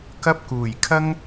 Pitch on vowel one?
high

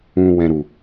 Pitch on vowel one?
low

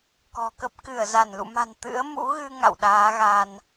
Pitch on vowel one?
low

